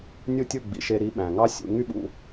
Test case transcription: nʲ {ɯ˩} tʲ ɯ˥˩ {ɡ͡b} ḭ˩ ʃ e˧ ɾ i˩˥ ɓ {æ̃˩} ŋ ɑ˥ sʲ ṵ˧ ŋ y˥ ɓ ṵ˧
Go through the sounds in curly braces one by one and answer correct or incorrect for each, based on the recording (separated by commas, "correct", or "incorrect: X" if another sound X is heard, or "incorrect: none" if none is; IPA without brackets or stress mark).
incorrect: ɯ˥˩, correct, correct